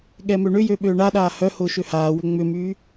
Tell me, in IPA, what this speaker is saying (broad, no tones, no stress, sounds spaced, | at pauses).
ɠ ɛ m ø ɳ ʏ j ø ɓ øː ɳ a ɗ aː h œ h ʊː ʃ ø h aː w ʏ ŋ͡m ʏ m yː